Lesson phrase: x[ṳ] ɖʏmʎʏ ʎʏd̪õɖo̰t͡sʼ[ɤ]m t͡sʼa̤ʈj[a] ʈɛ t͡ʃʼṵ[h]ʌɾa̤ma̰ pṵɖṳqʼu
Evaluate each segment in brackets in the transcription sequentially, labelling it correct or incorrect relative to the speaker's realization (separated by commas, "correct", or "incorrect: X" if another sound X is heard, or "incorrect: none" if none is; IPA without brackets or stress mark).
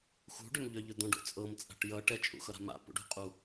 correct, correct, incorrect: ʌ, incorrect: x